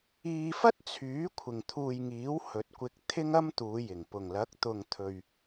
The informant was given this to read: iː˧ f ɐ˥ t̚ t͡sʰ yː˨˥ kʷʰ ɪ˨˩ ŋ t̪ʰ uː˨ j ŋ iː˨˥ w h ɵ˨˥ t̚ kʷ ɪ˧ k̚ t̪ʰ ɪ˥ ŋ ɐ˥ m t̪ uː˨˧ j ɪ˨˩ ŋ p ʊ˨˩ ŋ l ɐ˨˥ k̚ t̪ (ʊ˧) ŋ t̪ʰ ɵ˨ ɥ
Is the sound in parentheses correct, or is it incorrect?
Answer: incorrect